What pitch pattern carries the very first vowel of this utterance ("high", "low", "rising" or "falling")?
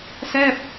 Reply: falling